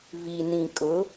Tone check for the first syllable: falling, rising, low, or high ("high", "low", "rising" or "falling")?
low